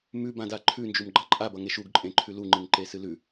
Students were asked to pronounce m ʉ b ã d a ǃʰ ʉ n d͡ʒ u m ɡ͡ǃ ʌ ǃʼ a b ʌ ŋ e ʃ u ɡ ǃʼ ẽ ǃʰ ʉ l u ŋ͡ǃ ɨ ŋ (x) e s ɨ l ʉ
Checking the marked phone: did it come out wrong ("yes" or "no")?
yes